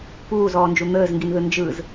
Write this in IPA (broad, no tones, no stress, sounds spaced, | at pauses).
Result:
p uː z ɔː n d͡ʒ u n̪ əː z ŋ ɡ i n ð ɯ n d͡ʒ ɯ z